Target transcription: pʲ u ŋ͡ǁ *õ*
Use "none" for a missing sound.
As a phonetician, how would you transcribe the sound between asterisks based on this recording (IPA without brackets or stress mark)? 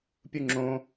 õ